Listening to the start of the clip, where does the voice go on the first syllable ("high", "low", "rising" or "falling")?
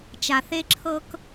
low